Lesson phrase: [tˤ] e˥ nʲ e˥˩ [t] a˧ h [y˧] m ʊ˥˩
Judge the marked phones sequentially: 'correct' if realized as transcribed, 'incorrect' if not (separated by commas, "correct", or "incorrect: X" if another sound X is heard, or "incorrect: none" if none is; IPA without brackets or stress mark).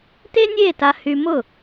incorrect: t, correct, correct